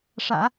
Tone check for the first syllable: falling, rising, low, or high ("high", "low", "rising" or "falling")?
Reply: low